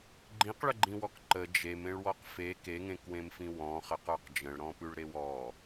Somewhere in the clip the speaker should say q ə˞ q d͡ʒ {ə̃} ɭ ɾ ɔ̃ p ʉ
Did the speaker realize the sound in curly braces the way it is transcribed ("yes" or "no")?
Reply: yes